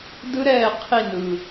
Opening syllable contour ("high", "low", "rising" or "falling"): high